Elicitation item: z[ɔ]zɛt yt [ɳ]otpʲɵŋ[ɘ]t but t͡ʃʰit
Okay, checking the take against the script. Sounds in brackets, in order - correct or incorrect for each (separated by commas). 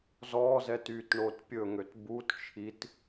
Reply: correct, correct, incorrect